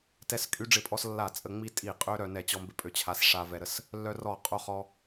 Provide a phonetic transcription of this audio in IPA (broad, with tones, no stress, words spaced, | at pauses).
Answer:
tɛ˧skʼy˧ ɖ͡ʐɪ˧˩˧pʼɔ˧s lːa˧˩˧t͡sʼə˧˩˧ ŋ͡mi˧tʼi˧˩˧qʼø˧ ɾœ˧˩˧nɛ˧˩˧ t͡ɕɔ˧ mbɪ˧ pʼø˧t͡ɕʰa˧s ʂa˧vɛ˧ɾə˧s | lːœ˧rɔ˧˩˧qʼo˧χɔ˧